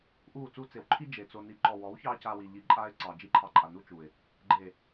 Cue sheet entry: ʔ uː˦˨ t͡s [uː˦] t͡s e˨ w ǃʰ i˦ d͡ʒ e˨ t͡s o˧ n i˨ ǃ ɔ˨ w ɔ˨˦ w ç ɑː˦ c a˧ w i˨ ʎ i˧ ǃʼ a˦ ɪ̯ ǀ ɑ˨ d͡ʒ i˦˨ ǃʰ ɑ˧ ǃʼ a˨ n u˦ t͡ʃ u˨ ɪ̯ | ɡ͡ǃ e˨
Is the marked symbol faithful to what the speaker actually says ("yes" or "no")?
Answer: yes